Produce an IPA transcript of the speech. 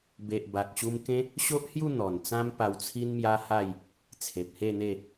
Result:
b e˨ ʔ b a˨ k̚ ɕ u˧ m k ẽ˦ | ɕ o˦ ʔ h j u˥˧ n̪ ɔ˨˩ n t͡s ã˧ m p a˨˩ w t͡sʰ i˧ n m j a˧ h a˥˧ j | t͡sʰ e˨ p̚ h e˥˧ n̪ e˥˧

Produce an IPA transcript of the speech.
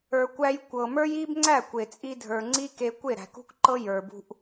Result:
ə˞˨ kʷ æ˧ j kʷ ɤ˨ m ə˞˦ j i˦ b ŋ͡ǀ æ˦˨ kʷ e˨ t͡sʼ i˧ dʱ ə˞˨ ŋ͡ǀ i˦ k e˧ kʷ e˦˨ ɾ æ̤˨ k ṳ˦ k ǃ ɤ˦ j ə˞˨ b ṳ˧ ʔ

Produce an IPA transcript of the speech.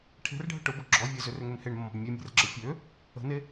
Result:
ʈʰ e̤ r ɖʱ ə ʈ ʊ b ʊ ɡ͡ǁ ɔ vʲ e z ʏ r ø ŋ ø n h e ɳ mː ɔ̤ b mʲ e mʲ e̤ r ɡ͡ǁ ə fʲ ø | ə̤ n e

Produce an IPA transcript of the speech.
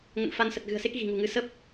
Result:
ŋ ə̰˧˨ n f a˧ n s ə˨˩ t̚ ɣ ɨ̤˨˩ ə̯ s e˦˥ k̚ ɣ i̤˨˩ ŋ ṳ˨˩ ŋ ɨ˨˦ s ə˦˥ p̚

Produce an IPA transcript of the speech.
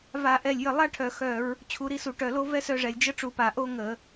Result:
v a˧˩˧ ʔ ɛ˧˩ lʲ j ə˧˩ lˠ a˥ ʈʰ œ˧˩ x œ˧˩˧ ɹ | t͡ɕʰ u˧˩ ɾ i˥˨ s u˧˩˧ ʈ œ˧˩ l o˥ v ɛ˥ s œ˥˨ ʐ ɛ˧˩ lʲ d͡ʒ ə˥ ʈ͡ʂ u˧˩˧ p a˧˩˧ ʔ o˥ ŋ ə˧˩˧

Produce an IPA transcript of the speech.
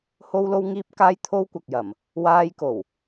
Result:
h o˥ w l o˥ w ŋ iː˥ p̚ k aː˥ j t̪ʰ o˥ w kʷ ɐ˨ k̚ j ɐ˨˩ m | w aː˧ j k o˨˩ w

